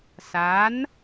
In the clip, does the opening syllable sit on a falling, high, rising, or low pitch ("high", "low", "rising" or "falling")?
rising